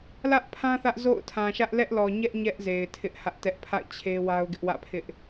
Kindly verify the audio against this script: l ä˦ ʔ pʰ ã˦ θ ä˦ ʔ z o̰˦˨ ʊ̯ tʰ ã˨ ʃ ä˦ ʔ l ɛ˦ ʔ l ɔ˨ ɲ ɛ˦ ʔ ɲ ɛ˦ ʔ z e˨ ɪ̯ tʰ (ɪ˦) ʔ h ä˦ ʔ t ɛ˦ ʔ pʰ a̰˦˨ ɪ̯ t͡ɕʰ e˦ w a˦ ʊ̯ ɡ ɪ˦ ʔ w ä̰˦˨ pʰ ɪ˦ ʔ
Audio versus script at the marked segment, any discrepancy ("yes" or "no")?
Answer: no